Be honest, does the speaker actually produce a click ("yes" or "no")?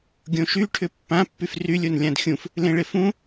no